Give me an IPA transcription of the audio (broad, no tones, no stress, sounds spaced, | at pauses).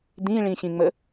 d̪ ĩ ɭ ĩ ɕ ĩ ŋ͡m ə